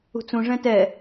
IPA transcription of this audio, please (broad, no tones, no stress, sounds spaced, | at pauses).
ṳ t͡s ũ ʐ ɛ̃ t ɛ